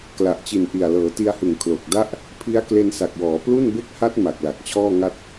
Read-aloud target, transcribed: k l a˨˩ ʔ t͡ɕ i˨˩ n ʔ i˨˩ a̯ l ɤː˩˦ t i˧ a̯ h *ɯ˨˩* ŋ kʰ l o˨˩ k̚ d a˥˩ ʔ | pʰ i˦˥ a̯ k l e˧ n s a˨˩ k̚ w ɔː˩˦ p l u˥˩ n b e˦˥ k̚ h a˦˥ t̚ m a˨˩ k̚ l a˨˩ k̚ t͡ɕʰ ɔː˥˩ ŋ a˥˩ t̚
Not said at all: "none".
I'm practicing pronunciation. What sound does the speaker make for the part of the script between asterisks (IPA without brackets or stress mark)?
ɯ˨˩